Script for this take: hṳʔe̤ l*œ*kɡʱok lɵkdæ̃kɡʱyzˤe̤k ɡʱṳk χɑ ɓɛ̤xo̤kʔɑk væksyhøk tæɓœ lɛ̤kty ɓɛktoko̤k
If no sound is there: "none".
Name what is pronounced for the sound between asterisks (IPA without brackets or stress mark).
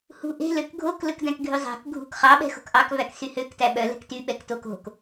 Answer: ø